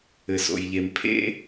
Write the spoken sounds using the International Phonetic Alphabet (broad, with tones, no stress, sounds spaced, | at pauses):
ɘ˩ s o̰˩ j ʎ e˩ m pʰ ḛ˥